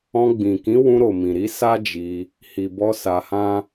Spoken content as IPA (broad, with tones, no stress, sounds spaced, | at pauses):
ɔ̃˧ ɡ͡b ĩ˨ k ĩ˨˦ w ũ˧ ɾ o˨ m ĩ˨ ɾ i˧ s a˦ d͡ʒ i˧ | h i˨ b ɔ˧ s a˧ h ã˦